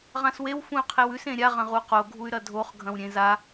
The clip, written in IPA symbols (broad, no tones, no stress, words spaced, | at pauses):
ʁãswew fũy̯qʰewʉs ẽɾʲa ʁɐ̃ʁuqo ɡʱuy̯ɾɐdʱoχ ɡʱɐ̃wɾʲẽza